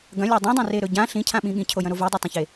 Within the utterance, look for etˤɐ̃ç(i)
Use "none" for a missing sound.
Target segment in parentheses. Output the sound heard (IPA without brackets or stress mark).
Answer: e